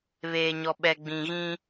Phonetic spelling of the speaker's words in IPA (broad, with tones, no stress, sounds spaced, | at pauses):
β eː˨ ɲ ɔ˨ ɓ ɛ˨ ɡ͡b ĩ˨ ɣ ĩ˦